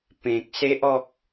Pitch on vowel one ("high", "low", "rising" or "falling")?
low